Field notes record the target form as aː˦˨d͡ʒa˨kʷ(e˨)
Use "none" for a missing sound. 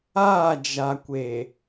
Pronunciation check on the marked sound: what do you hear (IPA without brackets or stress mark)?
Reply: e˨